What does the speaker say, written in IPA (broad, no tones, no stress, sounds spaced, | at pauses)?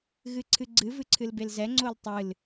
ɣ ɨ ǀʰ ɨ ɡ͡ǀ ɨ v ɨ ǀʰ ɨ l b e l z ɛ ŋ͡ǀ o l tˤ ɨ l